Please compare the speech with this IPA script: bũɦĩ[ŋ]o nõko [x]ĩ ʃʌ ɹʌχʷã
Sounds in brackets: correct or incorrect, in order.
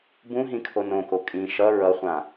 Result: incorrect, incorrect

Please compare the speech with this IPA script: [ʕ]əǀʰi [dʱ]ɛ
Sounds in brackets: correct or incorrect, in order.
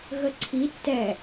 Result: incorrect, incorrect

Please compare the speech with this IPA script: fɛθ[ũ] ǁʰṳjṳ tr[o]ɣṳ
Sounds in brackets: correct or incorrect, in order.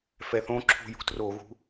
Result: incorrect, correct

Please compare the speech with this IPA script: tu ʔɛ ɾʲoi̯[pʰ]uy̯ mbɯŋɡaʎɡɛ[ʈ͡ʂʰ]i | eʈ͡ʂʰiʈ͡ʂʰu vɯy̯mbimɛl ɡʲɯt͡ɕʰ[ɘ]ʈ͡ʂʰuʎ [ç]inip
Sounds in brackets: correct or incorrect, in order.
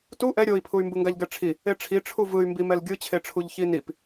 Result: correct, correct, incorrect, correct

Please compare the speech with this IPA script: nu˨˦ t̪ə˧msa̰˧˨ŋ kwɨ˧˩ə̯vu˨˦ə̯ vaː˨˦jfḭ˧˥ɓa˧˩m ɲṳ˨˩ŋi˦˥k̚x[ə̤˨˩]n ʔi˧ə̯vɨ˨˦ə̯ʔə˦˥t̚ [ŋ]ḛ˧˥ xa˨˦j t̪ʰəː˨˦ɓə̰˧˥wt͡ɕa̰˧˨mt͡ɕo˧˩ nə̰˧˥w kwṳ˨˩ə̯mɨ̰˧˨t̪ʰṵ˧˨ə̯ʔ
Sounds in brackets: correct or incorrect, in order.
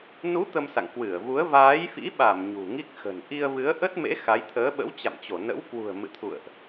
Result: correct, incorrect

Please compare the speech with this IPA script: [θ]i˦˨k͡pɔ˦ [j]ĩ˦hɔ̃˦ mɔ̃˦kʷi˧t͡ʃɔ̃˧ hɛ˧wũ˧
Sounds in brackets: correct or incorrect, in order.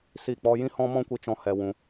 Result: incorrect, correct

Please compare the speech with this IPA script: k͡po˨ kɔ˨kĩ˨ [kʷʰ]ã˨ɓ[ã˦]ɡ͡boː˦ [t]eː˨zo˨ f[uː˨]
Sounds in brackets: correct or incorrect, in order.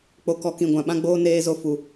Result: incorrect, correct, incorrect, incorrect

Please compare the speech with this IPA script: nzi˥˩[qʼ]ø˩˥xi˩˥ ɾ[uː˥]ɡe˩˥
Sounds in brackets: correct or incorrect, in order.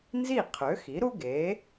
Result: incorrect, incorrect

